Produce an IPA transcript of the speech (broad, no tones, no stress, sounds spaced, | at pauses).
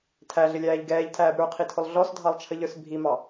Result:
tʰ æ ɮ ɪ lʲ æː ʎ ɡ ɛː ʎ tʰ æː b ɾ ə˞ qʰ i tʰ ʊ lˠ ɮ ɔ s dʱ ɑ lˠ t͡ʃʰ ə ʎ ə˞ s bʱ i m ɑ